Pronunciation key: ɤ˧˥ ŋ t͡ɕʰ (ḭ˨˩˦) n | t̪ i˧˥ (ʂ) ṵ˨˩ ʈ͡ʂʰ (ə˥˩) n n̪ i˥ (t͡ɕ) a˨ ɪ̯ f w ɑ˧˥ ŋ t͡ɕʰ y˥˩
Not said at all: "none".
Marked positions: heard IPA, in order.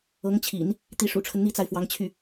ḭ˨˩˦, ʂ, ə˦, t͡s

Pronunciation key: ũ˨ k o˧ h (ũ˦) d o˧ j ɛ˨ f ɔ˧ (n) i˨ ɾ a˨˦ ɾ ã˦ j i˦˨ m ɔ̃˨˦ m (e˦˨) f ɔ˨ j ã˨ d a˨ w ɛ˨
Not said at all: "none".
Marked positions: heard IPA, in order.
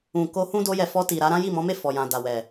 ũ˦, t, e˦˨

